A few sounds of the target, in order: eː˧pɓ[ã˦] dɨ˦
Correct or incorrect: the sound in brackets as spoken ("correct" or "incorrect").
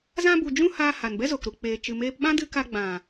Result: correct